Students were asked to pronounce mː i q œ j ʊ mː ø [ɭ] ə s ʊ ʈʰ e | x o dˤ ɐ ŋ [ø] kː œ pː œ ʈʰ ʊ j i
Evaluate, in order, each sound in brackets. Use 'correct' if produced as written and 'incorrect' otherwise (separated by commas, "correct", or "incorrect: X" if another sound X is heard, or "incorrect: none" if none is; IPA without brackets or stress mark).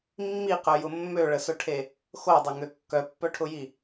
correct, correct